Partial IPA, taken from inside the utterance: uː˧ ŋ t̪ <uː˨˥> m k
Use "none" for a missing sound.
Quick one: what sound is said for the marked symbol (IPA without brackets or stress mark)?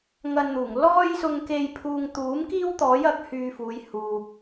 uː˨˥